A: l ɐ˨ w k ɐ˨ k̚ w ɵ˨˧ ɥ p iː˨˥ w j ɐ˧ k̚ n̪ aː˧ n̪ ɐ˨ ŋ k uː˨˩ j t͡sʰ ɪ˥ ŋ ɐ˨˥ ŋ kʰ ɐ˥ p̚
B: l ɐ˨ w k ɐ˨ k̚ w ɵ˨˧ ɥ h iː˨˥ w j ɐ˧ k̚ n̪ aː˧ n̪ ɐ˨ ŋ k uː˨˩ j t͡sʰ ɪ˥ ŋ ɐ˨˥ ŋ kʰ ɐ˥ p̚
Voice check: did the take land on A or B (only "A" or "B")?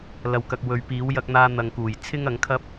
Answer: A